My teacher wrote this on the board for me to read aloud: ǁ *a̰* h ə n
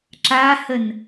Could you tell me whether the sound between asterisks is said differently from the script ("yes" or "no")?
yes